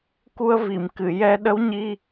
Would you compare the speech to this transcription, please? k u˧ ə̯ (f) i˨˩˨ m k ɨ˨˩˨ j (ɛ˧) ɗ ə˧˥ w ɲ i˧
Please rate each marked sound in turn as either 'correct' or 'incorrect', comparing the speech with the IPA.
incorrect, correct

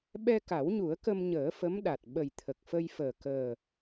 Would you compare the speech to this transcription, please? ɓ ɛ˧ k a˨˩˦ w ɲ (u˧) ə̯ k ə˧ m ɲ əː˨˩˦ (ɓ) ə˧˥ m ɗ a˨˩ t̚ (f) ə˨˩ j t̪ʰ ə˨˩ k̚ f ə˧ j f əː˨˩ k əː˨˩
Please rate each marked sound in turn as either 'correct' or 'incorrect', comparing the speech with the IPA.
incorrect, incorrect, incorrect

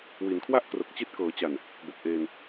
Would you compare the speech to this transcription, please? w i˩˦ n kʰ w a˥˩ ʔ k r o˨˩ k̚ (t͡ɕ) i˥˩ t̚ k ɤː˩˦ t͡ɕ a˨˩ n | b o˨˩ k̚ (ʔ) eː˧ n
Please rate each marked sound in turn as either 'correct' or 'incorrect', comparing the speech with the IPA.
correct, correct

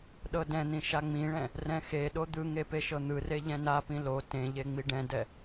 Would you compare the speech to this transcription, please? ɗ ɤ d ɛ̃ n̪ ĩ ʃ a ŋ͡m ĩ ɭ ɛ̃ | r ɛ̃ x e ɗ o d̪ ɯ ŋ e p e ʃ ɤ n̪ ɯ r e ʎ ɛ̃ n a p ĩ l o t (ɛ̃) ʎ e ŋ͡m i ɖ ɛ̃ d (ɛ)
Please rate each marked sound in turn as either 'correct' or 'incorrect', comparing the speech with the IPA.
incorrect, correct

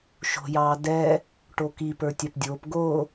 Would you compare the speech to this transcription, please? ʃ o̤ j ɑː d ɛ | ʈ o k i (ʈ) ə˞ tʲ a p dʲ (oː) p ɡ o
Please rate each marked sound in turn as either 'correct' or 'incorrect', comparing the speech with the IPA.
incorrect, correct

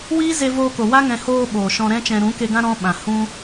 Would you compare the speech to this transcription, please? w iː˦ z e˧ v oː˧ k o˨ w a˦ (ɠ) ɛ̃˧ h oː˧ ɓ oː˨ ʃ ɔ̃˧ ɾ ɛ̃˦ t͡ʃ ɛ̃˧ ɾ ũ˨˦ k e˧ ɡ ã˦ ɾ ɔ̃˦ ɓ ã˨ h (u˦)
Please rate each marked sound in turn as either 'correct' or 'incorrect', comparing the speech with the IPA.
incorrect, incorrect

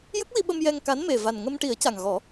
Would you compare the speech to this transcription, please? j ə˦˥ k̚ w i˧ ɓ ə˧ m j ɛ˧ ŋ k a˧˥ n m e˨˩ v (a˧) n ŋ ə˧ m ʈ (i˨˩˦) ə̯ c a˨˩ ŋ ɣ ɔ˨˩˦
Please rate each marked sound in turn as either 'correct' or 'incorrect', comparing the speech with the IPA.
incorrect, correct

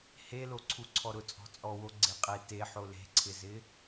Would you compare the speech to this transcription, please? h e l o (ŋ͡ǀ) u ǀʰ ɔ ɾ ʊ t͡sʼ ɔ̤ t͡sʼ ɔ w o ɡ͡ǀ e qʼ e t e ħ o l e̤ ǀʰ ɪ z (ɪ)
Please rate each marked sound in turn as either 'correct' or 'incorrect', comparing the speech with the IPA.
incorrect, correct

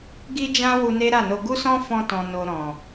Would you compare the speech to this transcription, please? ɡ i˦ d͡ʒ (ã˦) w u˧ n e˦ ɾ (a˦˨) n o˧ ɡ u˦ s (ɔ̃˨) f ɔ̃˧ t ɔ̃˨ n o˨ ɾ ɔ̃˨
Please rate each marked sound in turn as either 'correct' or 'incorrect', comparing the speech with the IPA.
correct, correct, incorrect

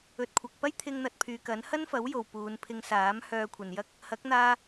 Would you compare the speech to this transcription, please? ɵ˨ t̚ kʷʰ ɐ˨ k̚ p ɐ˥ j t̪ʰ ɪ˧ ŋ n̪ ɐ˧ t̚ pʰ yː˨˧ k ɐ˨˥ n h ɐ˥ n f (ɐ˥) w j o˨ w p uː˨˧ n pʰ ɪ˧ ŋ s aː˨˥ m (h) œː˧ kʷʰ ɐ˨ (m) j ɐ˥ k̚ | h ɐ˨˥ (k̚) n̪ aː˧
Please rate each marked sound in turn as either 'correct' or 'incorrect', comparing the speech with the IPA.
incorrect, correct, incorrect, correct

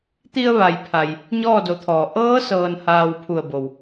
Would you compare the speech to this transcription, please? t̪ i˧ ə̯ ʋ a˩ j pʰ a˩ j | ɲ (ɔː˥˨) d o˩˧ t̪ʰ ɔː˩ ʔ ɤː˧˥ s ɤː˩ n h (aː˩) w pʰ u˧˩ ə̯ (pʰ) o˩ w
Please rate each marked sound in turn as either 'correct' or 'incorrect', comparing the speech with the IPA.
correct, correct, incorrect

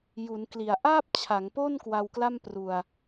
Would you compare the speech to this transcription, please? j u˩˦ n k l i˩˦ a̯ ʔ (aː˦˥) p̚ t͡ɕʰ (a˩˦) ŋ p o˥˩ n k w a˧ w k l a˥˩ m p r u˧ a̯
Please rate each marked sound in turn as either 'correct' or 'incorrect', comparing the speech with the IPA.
incorrect, correct

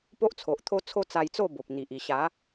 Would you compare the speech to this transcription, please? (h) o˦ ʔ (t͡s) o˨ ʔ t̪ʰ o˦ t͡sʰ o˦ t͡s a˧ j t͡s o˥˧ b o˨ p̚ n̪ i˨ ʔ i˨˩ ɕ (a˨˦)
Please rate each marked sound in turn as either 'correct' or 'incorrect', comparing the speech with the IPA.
incorrect, incorrect, correct

